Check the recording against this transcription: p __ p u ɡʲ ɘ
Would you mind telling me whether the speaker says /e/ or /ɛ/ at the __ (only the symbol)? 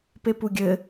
e